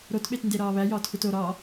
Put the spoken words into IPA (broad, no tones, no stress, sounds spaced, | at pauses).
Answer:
ɾ o t ɓ e t n d e ɾ ɒː β æ j ɒː t x u t o ɾ ɒː